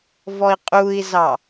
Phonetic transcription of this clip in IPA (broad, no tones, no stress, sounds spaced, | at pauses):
v ɔ i̯ qʼ u i̯ z ɑ